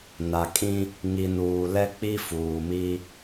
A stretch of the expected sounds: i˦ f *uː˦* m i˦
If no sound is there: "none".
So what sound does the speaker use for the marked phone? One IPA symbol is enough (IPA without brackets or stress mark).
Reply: uː˨